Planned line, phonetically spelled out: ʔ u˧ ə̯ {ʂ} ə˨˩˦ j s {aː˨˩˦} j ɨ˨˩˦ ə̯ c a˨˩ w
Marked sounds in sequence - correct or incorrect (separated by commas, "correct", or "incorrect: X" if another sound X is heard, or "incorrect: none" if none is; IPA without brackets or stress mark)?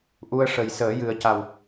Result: correct, incorrect: əː˨˩˦